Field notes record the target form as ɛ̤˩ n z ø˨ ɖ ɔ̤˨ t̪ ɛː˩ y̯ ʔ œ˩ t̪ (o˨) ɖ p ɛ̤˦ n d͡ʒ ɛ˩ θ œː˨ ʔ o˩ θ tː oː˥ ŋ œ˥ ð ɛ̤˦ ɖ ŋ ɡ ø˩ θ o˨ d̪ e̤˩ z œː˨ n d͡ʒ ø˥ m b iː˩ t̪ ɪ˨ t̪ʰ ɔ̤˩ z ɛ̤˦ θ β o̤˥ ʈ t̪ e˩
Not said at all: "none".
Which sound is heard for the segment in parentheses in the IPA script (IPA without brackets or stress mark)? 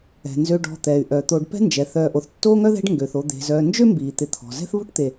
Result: o˨